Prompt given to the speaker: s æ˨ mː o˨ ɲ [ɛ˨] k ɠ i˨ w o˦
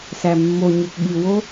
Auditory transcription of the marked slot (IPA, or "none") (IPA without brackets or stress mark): e˨